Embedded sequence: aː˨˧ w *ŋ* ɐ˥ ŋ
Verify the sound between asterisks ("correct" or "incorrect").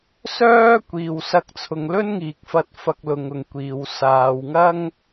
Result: correct